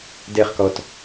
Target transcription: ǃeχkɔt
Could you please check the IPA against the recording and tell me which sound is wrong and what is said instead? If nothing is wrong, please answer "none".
ǃ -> d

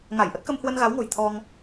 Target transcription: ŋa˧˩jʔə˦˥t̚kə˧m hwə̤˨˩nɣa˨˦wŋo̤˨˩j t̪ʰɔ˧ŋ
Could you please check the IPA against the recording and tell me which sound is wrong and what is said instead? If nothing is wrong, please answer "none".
ə̤˨˩ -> ə˧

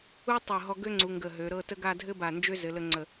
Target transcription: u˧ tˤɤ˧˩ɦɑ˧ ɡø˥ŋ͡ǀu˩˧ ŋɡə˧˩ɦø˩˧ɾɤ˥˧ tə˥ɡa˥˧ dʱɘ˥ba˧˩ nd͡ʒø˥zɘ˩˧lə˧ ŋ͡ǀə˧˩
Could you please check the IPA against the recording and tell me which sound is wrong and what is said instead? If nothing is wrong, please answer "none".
ɑ˧ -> ɔ˧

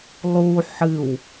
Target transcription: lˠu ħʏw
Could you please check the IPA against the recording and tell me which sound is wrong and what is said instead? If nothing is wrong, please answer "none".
ʏ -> ɨ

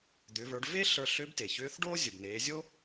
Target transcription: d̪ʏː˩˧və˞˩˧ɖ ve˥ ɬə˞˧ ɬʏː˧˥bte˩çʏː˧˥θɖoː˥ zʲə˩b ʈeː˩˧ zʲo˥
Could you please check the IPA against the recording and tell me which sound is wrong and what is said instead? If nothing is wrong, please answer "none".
ʈ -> n̪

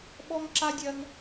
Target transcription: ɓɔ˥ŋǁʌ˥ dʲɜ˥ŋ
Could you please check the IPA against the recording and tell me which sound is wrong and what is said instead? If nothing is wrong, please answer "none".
ʌ˥ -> a˥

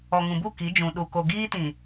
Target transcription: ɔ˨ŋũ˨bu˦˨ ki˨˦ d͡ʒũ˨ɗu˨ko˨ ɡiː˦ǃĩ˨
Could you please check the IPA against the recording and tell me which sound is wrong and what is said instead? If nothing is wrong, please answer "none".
ǃ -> t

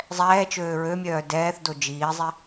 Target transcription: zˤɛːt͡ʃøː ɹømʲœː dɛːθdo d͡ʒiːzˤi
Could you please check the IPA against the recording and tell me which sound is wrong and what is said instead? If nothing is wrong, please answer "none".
none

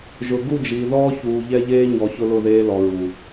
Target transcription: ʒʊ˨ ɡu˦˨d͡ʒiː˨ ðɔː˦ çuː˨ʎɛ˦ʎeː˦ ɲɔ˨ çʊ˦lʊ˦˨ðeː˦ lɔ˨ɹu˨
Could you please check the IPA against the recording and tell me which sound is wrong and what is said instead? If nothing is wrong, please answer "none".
none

